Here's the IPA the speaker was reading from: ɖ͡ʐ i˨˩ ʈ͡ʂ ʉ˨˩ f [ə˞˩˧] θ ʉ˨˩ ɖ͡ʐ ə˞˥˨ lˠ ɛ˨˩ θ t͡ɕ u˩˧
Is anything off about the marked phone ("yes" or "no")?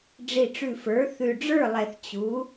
no